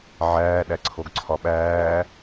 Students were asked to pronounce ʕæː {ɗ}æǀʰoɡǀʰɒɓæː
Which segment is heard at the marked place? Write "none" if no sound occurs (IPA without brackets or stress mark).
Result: ɗ